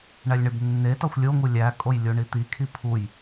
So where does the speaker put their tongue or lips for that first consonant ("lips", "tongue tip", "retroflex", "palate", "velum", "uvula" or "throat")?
retroflex